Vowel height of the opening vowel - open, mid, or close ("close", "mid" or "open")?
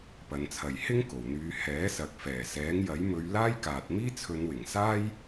open